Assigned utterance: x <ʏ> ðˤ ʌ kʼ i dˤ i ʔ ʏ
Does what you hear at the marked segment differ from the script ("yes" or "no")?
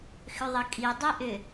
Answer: no